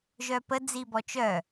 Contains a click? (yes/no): no